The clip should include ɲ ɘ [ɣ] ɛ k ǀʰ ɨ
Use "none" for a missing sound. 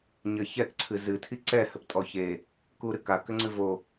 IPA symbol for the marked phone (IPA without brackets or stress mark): ç